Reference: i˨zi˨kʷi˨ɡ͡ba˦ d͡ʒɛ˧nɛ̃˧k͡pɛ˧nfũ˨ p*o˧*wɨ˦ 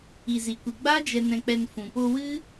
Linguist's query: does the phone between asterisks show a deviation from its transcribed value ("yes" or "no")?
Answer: no